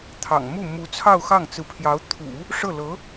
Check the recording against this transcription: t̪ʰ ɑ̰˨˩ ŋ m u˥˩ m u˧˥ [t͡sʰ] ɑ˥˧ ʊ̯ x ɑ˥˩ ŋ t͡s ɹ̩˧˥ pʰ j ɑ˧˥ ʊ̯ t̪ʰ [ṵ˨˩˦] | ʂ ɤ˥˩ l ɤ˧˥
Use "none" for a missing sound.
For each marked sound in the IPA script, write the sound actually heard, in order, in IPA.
t͡sʰ, ṵ˨˩˦

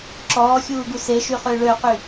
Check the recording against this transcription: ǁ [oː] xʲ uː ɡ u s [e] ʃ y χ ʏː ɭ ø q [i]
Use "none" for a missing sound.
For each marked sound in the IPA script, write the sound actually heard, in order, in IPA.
ɔː, e, y

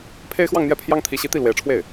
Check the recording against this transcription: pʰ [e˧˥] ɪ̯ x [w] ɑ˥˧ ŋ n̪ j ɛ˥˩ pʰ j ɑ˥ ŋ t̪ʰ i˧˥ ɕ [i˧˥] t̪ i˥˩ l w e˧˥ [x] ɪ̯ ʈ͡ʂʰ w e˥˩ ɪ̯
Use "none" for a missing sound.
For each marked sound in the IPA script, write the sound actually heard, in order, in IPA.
e˥, w, i˧˥, none

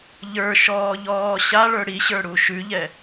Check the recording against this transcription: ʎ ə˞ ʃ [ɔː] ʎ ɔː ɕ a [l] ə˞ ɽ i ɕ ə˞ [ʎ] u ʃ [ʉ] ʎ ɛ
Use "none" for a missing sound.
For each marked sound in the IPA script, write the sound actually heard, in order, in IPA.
ɔː, ɭ, ɽ, ʉ

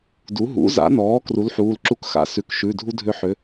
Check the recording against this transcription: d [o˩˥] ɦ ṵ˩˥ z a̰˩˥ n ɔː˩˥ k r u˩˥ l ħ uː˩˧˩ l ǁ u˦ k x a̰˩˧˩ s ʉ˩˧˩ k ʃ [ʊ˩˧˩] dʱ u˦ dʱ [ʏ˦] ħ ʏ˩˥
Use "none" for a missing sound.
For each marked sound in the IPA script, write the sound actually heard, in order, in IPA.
u˩˥, ʉ˩˧˩, ʏ˦

